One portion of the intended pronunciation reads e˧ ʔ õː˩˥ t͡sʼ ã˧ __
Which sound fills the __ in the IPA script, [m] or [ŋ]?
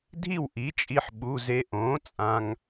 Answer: ŋ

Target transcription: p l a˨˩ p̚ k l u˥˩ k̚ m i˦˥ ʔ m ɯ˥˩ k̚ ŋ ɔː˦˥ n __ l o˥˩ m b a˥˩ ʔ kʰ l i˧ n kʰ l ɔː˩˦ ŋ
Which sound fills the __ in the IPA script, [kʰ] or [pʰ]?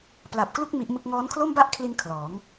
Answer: kʰ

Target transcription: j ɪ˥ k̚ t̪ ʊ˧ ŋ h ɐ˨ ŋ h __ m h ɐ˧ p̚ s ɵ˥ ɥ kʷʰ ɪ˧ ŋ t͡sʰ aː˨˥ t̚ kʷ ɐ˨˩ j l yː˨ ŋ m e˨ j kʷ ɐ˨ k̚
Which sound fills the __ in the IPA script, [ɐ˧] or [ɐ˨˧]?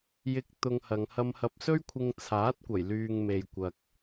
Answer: ɐ˧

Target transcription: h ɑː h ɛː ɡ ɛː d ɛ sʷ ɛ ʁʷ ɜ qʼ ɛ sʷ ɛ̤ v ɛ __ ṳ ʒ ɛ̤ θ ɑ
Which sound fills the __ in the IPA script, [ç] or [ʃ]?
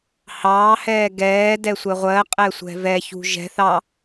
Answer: ç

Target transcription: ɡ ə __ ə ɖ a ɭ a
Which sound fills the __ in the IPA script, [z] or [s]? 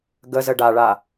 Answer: z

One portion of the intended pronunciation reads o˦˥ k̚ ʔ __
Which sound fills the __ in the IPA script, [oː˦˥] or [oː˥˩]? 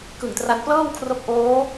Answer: oː˦˥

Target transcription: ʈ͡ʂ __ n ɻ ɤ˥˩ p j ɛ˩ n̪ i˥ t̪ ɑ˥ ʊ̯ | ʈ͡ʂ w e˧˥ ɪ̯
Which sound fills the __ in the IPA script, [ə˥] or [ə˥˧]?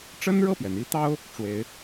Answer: ə˥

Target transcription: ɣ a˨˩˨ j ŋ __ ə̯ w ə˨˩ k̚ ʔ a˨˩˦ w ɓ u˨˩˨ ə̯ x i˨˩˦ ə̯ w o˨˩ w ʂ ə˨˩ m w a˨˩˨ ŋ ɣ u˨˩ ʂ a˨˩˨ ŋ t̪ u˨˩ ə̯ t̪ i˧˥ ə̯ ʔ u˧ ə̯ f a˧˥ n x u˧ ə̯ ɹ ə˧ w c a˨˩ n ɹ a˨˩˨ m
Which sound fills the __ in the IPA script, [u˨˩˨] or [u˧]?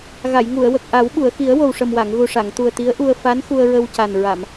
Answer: u˨˩˨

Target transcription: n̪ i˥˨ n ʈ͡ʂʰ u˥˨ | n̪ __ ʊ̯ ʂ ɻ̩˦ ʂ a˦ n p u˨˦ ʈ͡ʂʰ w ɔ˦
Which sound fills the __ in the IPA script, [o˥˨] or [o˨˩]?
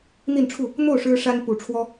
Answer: o˥˨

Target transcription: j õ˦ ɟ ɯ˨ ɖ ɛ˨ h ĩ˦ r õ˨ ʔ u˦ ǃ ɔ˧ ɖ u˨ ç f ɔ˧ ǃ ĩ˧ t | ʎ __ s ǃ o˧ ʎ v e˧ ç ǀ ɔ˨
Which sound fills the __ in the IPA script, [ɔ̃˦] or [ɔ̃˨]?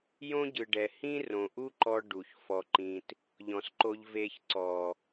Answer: ɔ̃˨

